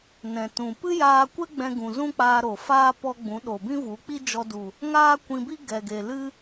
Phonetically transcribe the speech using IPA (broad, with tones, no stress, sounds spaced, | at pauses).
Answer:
n ɛ̃˨ t ũ˨ p ɨ˦ j aː˧ kʷ ɛ˦ ɡ͡b ɛ̃˧ ɡ ũ˨ z ũ˦ k͡p aː˧ ɾ o˨ f aː˦ p ɔ˧ ɡ͡b ũ˨˦ ɗ o˨ b ĩ˦ v u˨˦ k͡p i˦ d͡ʒ ɔ˧ d u˨ | ŋ aː˦ kʷ ĩ˧ b i˦ ɡ ɛ˨ ɡ e˨ l ɨ˦